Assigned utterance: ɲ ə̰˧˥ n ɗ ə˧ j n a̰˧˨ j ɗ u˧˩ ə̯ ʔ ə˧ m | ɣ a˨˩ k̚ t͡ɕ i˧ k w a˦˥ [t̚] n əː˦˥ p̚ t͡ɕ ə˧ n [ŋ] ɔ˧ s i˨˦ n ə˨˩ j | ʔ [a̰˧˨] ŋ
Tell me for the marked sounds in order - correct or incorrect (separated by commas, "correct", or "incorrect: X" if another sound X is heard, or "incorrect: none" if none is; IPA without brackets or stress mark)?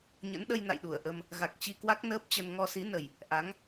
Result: incorrect: k̚, correct, incorrect: a˨˦